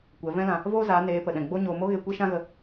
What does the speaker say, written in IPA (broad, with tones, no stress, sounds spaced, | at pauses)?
kʷ ɛ˨˦ v ɛ̃˦ l ã˧ | v oː˦ z aː˨˦ n eː˨˦ p ə˨ ɗ ɛ̃˨ ɡ͡b o˦ ɲ oː˧ m o˦ ɣ e˧ kʷ e˦ ʃ ã˦ ɣ ə˧